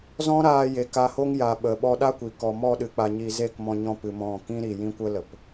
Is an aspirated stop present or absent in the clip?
absent